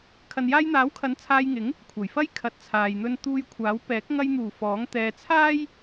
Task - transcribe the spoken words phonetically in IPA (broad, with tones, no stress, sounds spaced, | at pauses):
kʰ ɐ˨ n j aː˧ j n̪ aː˨˥ w kʰ ɐ˨˥ n t͡sʰ aː˧ j ŋ ɪ˨˥ ŋ | kʷʰ ɐ˨˩ j f ɐ˥ j kʰ ɐ˨ t̚ t͡sʰ aː˨ j n̪ ɵ˧ n t̪ uː˧ j kʷʰ aː˨˥ w p ɛː˨˥ k̚ ŋ ɐ˧ j n̪ uː˨˩ f ɔː˨˥ ŋ t̪ ɛː˨ t͡sʰ aː˥ j